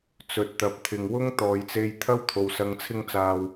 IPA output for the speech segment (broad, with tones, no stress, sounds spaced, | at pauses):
t͡s ɵ˨ t̚ t̪ ɐ˨ p̚ t̪ʰ ɪ˨ ŋ w ʊ˥ ŋ t̪ ɔː˨ j t͡s e˧ j t̪ʰ ɐ˥ w t̪ʰ o˨ w s ɐ˨˧ ŋ t͡sʰ ɪ˧ ŋ t͡s aː˨ w